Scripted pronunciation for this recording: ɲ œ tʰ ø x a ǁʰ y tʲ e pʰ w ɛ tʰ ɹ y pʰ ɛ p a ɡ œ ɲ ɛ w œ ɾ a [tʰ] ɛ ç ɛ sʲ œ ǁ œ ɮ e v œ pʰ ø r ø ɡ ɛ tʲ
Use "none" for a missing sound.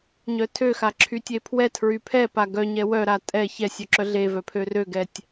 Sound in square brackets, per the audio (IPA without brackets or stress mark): tʼ